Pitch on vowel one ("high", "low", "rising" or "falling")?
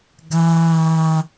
low